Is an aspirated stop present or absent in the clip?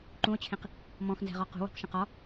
present